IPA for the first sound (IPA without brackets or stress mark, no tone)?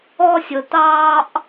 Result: ɔ